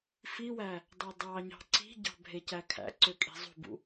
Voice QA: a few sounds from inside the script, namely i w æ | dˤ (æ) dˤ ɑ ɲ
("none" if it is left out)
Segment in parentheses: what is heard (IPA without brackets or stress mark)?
æ